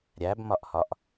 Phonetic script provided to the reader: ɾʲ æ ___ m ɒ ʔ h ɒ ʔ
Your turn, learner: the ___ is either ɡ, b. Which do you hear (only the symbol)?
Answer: b